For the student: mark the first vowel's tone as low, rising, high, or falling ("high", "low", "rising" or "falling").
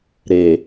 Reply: low